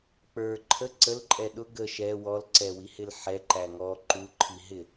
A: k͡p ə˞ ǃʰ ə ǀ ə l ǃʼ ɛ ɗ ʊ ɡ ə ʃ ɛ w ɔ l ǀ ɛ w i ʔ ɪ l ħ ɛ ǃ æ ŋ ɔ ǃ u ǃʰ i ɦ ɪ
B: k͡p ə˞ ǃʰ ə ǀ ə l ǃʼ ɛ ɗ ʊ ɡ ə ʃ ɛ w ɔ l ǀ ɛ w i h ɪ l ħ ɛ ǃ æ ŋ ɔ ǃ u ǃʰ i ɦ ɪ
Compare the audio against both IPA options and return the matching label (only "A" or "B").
B